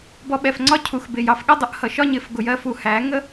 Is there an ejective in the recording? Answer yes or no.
no